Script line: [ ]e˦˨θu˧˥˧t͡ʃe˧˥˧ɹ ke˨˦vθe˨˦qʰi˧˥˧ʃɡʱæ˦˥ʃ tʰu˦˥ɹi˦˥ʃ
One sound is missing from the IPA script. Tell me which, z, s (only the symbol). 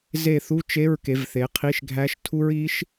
z